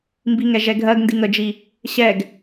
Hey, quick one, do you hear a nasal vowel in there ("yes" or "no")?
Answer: no